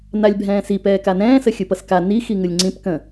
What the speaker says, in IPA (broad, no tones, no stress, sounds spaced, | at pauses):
n a lʲ bʱ ɛ̃ː s i p ɛː k a n ɛ̃ː s ə xʲ ɯ p ʌ s k a n i x i ŋ ɯ lʲ ŋ͡ǀ ĩ p k ə̃